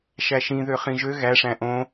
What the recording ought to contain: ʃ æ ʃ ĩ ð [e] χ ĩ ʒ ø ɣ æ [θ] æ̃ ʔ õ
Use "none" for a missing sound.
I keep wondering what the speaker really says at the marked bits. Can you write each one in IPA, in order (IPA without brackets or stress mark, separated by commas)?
ø, ʂ